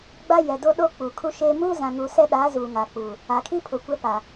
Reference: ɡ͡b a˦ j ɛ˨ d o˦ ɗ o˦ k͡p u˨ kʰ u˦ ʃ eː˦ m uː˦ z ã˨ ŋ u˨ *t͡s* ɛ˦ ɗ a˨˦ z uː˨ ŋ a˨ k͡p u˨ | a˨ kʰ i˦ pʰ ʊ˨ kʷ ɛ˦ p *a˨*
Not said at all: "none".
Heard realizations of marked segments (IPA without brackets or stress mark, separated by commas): s, a˨